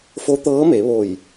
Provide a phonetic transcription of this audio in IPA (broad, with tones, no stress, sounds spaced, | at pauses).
f o˧˥ t̪ ɤː˧˥ m e˩˧ ʋ o˧˩ j